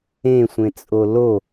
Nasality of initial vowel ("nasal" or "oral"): nasal